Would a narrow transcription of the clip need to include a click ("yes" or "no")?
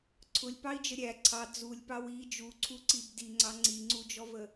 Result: yes